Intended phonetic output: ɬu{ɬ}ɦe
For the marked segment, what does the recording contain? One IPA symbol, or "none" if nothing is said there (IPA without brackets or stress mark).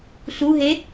none